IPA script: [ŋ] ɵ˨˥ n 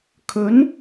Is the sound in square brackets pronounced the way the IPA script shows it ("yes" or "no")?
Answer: no